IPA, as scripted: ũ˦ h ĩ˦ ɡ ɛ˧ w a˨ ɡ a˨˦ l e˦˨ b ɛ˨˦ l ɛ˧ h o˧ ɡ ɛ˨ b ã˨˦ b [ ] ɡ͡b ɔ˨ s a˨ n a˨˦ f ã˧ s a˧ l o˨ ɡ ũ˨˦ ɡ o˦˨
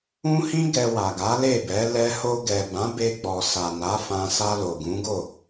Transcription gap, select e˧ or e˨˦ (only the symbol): e˧